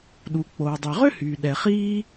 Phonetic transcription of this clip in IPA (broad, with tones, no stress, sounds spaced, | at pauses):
ɗ u˩ k͡p oː˩ dˤ ø˩ ʁ ø˥ h yː˩ ɗ ɛ˩ χ iː˥